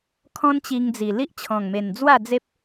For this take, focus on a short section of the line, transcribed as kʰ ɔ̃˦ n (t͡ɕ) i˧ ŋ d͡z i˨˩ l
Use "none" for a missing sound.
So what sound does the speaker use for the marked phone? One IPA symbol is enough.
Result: t͡ɕ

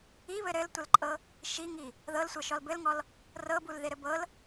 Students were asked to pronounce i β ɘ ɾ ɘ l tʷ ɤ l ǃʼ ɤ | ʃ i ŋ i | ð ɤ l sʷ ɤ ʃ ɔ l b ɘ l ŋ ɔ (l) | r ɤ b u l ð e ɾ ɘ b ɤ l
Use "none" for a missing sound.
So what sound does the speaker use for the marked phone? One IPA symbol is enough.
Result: l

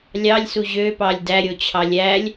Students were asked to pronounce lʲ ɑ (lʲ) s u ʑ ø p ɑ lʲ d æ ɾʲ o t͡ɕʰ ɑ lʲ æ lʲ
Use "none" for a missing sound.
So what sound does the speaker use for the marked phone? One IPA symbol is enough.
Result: lʲ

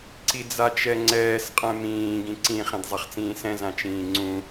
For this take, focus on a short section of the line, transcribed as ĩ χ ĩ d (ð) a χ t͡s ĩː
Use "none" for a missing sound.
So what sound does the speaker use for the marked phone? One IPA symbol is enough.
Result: zˤ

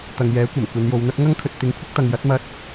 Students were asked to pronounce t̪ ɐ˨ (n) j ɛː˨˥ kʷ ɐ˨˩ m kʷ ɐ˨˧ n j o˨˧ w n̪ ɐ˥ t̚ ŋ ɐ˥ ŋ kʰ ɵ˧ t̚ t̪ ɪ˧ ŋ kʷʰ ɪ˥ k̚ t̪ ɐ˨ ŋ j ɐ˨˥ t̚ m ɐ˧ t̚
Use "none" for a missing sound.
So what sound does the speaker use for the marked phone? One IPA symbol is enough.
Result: ŋ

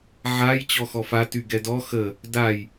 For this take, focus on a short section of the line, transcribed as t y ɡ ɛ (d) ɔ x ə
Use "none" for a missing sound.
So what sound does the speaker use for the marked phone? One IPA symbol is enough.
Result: d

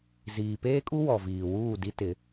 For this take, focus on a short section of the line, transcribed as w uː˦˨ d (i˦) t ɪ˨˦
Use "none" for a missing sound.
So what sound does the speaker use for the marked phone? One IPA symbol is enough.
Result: i˦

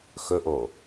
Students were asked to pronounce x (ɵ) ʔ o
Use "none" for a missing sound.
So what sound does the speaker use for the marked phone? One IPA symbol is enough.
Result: ɵ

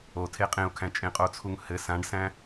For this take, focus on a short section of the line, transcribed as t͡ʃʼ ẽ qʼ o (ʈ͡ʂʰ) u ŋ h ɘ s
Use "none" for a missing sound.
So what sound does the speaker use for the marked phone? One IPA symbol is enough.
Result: t͡sʰ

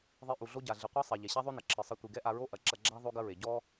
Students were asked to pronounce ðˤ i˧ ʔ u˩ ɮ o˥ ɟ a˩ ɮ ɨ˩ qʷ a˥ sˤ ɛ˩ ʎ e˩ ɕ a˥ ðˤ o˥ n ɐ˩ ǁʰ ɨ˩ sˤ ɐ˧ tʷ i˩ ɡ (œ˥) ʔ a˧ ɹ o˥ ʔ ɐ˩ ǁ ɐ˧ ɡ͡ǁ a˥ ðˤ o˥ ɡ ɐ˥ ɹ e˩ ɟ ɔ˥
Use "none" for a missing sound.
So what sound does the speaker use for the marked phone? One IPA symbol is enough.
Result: ɛ˥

